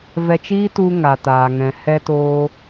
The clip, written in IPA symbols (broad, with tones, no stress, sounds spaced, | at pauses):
v ɛ˧ t͡ʃ iː˦ t u˧ ŋ a˨ t aː˨ ŋ ɛ̃˨ h ɛ˧ t oː˧